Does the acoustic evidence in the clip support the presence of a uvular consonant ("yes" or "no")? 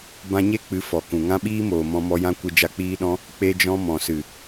no